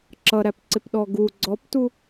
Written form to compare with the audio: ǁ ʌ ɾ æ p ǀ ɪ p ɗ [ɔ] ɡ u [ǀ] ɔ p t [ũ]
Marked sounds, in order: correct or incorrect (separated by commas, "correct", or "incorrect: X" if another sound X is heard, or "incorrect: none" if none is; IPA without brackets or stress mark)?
correct, incorrect: ɡ͡ǀ, incorrect: u